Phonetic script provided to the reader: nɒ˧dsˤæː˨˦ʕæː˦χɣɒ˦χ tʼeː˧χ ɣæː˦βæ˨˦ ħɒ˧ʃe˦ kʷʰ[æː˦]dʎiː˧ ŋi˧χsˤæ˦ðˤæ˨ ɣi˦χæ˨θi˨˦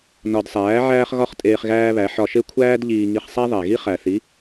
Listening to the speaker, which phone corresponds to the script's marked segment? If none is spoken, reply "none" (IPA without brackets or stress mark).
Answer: æː˦